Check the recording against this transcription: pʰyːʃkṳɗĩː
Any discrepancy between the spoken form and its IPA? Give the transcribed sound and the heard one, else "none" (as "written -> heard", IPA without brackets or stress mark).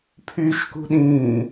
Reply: none